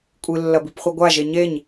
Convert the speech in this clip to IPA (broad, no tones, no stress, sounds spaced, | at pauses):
kʷʼ ɨ lː ɐ b i p χʷ i ɡʷ a ʒ e ɲ e ɲ